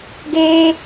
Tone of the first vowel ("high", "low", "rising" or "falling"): high